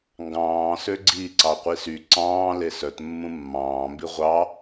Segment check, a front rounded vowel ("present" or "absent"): present